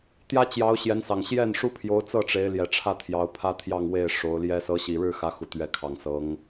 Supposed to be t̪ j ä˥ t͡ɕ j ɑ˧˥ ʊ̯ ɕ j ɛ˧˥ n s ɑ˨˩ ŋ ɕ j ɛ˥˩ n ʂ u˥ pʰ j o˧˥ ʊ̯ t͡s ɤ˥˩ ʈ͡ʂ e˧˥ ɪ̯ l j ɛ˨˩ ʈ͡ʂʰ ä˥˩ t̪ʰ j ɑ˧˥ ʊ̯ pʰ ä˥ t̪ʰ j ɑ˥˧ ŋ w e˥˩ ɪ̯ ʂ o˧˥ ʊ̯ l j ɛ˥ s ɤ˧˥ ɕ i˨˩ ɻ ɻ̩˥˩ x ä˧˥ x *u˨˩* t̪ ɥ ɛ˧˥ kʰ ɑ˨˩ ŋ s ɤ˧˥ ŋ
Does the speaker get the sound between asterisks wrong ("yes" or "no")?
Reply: no